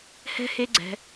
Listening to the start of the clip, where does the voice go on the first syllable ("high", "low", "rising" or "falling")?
high